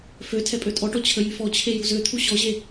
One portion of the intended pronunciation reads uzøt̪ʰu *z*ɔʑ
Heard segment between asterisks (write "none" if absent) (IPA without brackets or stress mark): ɕ